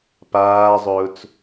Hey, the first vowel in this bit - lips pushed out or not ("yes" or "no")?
no